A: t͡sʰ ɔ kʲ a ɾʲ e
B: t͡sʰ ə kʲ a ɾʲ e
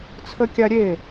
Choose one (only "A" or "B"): B